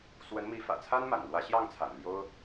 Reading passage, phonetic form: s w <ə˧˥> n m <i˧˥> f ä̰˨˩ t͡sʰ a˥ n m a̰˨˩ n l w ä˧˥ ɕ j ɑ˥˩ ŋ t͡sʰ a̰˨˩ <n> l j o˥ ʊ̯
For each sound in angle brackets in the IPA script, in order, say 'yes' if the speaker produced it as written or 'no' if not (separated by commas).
yes, yes, yes